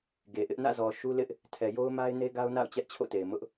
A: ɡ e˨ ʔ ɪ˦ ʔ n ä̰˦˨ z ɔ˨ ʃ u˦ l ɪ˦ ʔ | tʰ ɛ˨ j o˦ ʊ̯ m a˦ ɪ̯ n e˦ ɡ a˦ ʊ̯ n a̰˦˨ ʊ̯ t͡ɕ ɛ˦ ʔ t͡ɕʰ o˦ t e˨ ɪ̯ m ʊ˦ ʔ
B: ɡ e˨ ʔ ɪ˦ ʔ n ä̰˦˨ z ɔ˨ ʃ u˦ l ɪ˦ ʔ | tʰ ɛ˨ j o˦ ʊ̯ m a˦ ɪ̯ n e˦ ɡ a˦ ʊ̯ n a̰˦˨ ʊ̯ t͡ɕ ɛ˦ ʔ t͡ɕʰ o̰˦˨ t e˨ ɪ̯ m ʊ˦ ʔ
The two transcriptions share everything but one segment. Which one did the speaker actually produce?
B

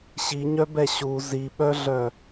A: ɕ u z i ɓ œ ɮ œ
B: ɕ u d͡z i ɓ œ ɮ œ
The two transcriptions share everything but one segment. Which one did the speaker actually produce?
A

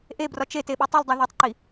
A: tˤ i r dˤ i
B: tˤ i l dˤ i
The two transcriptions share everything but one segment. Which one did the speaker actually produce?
B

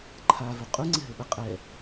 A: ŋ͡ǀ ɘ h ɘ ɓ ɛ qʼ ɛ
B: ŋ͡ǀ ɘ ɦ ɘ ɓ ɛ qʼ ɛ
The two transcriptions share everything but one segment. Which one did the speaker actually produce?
B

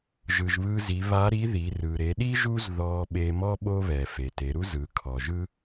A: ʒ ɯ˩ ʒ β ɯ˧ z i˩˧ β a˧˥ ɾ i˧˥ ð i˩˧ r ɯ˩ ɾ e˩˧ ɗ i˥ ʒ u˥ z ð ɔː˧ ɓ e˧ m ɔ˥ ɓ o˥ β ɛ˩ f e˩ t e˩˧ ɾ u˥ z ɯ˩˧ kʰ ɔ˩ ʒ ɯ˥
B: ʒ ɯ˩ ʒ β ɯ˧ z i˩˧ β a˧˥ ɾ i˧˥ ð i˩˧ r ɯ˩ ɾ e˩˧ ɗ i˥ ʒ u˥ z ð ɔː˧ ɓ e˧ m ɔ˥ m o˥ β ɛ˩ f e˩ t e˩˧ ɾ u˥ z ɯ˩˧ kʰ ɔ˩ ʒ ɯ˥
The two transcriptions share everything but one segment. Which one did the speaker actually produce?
A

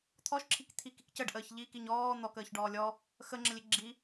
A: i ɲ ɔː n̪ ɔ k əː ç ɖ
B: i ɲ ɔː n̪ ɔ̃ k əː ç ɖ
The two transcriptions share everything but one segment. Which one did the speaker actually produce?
A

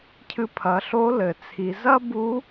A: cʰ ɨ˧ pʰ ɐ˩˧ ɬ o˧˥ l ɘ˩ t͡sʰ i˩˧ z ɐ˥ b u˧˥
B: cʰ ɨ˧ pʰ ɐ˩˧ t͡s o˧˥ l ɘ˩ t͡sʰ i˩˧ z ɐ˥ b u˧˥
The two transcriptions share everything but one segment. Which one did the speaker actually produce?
A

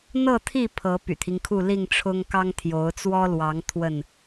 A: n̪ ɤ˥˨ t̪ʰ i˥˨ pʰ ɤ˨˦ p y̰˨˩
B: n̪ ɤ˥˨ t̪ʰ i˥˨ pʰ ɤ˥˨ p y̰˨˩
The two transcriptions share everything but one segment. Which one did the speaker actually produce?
A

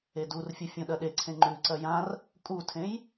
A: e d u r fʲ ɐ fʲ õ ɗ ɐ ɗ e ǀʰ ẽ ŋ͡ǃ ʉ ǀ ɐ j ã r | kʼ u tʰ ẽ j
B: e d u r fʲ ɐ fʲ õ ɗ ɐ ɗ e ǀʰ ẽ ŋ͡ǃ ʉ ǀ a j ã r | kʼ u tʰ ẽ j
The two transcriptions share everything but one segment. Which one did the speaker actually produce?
A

